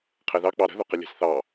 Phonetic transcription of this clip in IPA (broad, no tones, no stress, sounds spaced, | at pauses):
qʰ ɛ ð ɑ k͡p ɑ ɾ ə̤ ð ʊ q ə lʲ ɛ̤ s θ ɑ